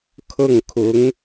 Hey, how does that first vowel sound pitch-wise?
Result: falling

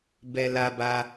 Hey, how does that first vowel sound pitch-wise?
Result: high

